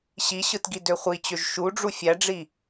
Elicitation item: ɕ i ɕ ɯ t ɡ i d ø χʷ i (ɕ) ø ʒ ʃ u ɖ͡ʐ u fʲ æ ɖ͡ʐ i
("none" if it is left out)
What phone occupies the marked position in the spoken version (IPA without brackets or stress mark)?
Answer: t͡ɕ